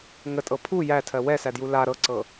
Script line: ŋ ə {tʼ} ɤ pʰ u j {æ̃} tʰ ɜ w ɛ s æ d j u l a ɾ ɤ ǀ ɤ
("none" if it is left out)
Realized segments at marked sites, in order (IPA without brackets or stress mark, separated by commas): tʼ, æ